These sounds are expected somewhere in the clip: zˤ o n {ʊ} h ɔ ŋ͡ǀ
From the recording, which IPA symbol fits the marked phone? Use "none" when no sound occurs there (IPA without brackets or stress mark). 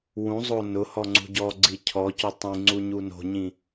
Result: ʊ